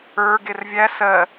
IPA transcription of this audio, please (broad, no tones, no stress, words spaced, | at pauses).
ə˞ɡer vʲæ sɜ